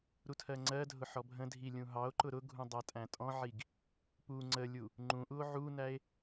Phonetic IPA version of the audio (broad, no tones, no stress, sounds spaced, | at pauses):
ɾ u tʰ ɜ ŋ͡ǀ ɜ dʱ ʊ ħ ɔ bʱ ə̃ dʱ i lʲ ũ ɦ ɑ o̯ ǃ ʊ ɾ ʊ ɡʱ ũ dˤ æ tʼ æ̃ tʼ ɔ̃ ʕ i ɡ | p u ŋ͡ǀ ə lʲ u | ŋ͡ǃ ũ ʔ u o̯ ʕ u n æ e̯